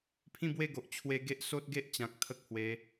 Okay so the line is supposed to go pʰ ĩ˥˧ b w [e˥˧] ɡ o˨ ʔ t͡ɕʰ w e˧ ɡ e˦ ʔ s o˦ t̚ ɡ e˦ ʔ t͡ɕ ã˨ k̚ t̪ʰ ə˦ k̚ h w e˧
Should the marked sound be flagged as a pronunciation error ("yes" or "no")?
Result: no